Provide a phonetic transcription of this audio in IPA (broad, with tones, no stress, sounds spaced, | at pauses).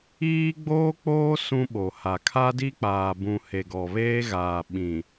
iː˦ ɡ͡b oː˦ k͡p oː˦ s ũ˦ ɓ o˨ h a˨ kʰ a˦ d i˦ k͡p aː˨ b ũ˨ h e˨ ɡ ɔ˨ β eː˦ ɣ aː˨ ɓ ĩ˨